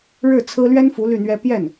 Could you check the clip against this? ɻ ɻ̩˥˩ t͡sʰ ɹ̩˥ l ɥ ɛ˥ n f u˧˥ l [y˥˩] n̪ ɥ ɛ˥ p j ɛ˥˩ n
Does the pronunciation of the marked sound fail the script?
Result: no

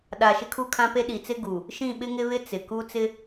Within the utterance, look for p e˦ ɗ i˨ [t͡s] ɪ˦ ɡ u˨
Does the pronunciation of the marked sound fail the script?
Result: no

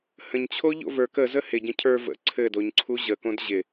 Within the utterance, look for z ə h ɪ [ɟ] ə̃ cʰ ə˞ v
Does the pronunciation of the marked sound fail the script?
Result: no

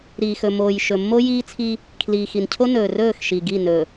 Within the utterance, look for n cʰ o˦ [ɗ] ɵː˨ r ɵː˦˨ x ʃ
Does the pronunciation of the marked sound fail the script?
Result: yes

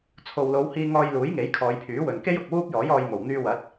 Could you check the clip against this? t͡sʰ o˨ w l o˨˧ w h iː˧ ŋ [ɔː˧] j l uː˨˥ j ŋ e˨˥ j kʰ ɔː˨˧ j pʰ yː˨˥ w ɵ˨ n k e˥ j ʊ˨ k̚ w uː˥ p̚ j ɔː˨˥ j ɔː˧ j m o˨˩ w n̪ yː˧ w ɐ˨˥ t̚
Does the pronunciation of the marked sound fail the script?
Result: no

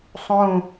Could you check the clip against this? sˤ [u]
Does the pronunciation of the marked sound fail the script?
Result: yes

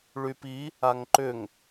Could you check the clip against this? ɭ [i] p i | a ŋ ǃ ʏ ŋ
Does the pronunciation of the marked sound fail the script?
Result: yes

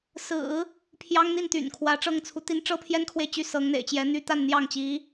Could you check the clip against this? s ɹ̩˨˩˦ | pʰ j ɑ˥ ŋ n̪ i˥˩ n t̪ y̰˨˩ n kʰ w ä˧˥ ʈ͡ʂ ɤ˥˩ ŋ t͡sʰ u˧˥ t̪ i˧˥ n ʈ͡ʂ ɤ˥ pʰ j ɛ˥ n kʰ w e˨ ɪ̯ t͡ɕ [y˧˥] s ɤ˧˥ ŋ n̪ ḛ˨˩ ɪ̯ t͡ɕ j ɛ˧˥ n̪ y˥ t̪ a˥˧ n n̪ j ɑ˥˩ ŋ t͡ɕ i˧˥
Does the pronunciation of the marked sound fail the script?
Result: yes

